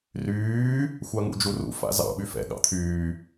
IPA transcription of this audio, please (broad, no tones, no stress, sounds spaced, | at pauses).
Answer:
r yː | xʷ a ŋ ṵ d͡ʒ u r ṵ f a̰ z ɑ̰ ɓ y f ɛ̰ ɠ ɑ̰ t̪ʰ yː